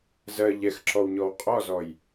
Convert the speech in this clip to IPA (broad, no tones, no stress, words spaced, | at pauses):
zɜ ʎɛxǁɔwɲɔw qʼɔzɔj